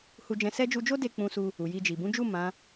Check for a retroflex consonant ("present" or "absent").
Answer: absent